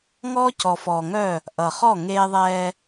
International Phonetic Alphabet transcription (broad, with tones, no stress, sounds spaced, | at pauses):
ŋ ɔː˦ c ɔ˨ f ɔː˨ ŋ œ˦˨ | ʔ ʌ˨ χ ɔ˦˨ ŋ eː˦ ðˤ ɛː˦